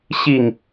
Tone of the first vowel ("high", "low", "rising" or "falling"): low